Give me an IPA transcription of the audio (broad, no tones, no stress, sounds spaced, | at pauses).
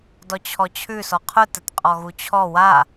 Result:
d ɔ t͡ɕʰ ɔ t͡ɕʰ ʉ s ɔ qʰ ʊ t ə t qʼ ɔ ɣ u t͡ɕʰ ɔ w a